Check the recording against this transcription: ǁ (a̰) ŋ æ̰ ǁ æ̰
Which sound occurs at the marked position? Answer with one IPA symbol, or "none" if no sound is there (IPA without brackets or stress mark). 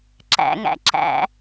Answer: æ̰